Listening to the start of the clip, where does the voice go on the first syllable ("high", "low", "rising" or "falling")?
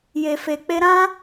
low